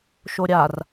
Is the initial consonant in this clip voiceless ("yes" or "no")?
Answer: yes